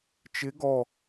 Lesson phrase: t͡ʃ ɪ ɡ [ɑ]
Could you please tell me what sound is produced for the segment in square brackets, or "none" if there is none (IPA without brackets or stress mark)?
ɔ